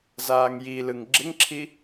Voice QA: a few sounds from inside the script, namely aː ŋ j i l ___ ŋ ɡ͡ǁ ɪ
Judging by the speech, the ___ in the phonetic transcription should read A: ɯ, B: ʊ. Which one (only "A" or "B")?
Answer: A